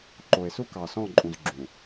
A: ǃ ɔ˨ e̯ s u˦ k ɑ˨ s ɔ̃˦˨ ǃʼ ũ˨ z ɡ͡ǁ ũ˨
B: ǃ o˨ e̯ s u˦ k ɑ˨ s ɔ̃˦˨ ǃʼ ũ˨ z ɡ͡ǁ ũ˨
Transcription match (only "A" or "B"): B